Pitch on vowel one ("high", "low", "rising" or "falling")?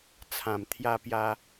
low